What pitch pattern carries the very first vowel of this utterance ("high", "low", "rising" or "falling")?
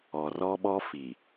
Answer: low